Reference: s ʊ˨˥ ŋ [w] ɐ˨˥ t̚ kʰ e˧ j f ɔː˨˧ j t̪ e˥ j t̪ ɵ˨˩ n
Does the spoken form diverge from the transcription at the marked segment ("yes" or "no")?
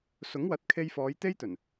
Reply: no